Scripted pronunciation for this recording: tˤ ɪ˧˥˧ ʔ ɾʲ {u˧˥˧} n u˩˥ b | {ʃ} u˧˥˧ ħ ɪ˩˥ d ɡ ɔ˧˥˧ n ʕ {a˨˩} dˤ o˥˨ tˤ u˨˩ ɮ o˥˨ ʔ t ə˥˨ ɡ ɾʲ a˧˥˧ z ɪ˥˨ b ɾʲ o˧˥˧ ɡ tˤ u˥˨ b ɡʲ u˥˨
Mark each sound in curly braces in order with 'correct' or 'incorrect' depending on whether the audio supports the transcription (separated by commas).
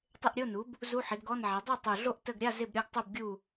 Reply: incorrect, incorrect, incorrect